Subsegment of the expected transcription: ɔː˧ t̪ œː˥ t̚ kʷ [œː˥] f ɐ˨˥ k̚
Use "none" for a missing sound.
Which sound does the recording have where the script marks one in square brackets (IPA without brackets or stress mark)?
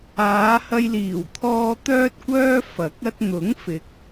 œː˥